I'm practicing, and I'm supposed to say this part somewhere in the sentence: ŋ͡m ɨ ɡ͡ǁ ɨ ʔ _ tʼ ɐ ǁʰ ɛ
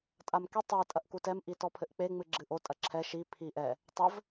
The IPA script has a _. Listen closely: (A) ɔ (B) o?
B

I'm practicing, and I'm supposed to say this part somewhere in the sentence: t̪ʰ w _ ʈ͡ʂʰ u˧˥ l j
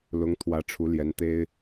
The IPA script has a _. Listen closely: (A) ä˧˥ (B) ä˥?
A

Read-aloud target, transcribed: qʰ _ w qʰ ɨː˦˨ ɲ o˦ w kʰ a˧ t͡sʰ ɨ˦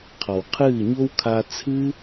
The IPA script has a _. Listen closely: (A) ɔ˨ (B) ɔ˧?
A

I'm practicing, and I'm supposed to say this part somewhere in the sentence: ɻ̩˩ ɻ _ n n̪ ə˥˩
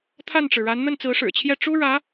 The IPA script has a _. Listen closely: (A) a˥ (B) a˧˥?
B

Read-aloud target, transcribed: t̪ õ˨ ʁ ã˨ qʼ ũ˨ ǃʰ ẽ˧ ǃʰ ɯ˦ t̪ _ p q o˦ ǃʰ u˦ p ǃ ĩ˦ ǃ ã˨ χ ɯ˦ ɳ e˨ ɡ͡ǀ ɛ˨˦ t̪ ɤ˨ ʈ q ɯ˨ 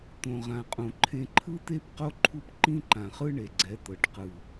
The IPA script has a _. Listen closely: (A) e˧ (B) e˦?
B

